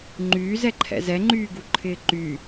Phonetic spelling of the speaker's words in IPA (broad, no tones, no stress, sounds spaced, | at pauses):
ŋ͡ǃ yː z ɛ ǃʰ ɛ̰ z ɛ ŋ͡ǃ yː ɡ u ǃʰ ɪː ǃ y